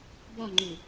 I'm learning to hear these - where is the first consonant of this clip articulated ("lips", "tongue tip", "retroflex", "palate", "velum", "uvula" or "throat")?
lips